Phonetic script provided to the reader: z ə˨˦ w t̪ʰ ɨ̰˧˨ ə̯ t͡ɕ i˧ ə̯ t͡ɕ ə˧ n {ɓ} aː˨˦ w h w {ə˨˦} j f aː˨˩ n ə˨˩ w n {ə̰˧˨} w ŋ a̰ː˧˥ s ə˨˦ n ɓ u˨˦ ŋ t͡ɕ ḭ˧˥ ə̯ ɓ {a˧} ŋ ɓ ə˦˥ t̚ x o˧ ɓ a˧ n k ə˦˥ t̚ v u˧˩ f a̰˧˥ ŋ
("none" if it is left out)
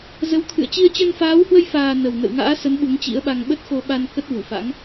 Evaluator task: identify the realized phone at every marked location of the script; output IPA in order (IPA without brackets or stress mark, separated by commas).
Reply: f, ə˧, ə̰˧˨, a˧